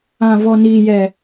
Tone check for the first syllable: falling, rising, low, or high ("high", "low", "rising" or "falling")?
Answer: low